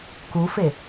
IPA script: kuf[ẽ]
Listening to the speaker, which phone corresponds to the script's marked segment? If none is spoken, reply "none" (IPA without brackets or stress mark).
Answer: e